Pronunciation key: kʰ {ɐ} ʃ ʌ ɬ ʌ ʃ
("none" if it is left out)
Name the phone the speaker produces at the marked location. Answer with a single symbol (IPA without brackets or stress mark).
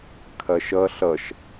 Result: ɐ